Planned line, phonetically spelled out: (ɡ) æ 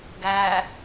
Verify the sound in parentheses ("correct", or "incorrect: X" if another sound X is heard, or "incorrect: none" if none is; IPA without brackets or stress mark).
correct